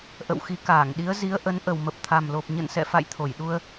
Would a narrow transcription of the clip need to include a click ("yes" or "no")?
no